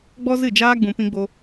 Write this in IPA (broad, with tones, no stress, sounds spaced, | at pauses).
ɡ͡b ɔ˦ z ɨ˦˨ d͡ʒ aː˦ ɡ͡b ũ˧ p ĩ˦ ɡ͡b o˦